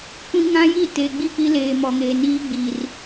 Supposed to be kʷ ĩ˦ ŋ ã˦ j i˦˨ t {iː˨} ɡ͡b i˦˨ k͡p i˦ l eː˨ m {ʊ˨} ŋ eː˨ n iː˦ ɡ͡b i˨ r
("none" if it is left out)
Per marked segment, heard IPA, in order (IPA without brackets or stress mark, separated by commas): eː˨, ɔ˨